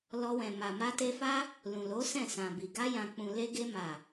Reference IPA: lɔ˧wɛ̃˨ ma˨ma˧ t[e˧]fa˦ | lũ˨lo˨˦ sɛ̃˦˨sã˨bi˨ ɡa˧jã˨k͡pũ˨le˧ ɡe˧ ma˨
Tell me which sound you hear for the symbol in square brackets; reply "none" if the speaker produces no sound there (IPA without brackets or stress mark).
e˧